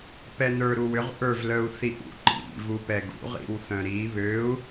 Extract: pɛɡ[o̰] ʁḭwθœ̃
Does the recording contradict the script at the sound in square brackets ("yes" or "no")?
yes